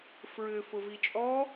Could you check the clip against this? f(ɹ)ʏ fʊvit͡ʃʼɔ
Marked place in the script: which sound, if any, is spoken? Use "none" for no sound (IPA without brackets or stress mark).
ɹ